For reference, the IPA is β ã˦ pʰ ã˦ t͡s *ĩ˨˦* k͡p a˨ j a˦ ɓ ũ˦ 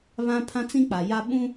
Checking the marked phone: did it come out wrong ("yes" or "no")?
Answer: yes